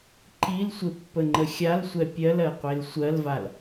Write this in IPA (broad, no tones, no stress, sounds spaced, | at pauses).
ǃ i l sʷ e pː ə ŋ͡ǃ ə xʲ a l sʷ ɛ pʲ ɜ l ɜ qʷ e l sʷ ɜ l v a l